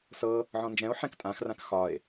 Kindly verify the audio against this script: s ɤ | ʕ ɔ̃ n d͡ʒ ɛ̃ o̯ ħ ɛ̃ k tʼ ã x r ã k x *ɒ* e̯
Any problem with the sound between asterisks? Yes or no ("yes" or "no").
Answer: no